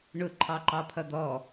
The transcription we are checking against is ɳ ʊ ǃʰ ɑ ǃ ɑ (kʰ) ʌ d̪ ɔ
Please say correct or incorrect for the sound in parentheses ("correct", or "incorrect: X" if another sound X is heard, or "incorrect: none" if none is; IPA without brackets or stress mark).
incorrect: pʰ